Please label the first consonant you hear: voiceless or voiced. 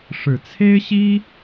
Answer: voiceless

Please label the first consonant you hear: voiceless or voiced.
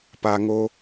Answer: voiceless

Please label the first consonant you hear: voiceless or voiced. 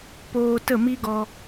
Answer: voiceless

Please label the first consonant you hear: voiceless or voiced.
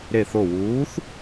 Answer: voiced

